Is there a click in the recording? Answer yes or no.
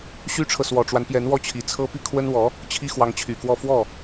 no